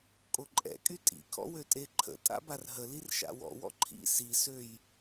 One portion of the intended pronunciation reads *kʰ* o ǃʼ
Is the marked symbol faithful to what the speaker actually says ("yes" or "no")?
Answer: no